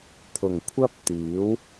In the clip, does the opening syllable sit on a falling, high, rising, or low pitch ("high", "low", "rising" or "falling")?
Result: low